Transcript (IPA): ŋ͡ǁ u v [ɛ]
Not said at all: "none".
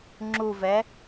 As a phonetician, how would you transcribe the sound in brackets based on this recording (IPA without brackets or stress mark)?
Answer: ɛ